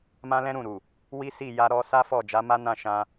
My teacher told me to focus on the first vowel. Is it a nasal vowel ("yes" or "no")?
yes